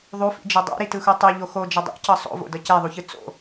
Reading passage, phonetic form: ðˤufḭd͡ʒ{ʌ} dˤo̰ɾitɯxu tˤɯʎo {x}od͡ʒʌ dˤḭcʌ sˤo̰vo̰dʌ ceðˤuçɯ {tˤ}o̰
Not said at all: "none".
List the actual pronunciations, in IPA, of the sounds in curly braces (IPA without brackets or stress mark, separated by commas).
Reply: ʌ, x, t͡s